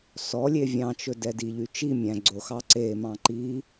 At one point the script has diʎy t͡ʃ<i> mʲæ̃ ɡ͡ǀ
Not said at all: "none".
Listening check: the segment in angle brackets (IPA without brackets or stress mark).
i